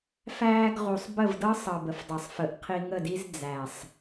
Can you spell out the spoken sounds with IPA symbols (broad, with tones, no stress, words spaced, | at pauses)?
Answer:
fæː˧ɡʁu˨sˤ bə˦˨vdɤ˦ sˤɤ˨ bə˨fdˤəː˨sˤfə˨˦ʔqʰi˧ ŋə˦˨di˦z d͡zæ˨sˤ